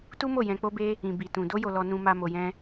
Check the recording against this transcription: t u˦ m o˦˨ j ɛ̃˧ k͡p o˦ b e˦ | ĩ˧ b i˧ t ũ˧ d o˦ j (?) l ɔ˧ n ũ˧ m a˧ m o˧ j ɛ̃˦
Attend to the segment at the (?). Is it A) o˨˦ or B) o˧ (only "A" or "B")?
B